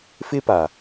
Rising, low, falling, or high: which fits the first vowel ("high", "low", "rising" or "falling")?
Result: high